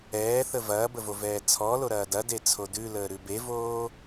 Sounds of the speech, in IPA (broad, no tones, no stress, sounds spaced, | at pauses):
ɛː θ ə v ɐː b ə v o v ɛː t͡sʰ ɔ l o ɾ ɐː d ɐ d e t͡sʰ o d ʉ l əː ɾ ʉ b e v oː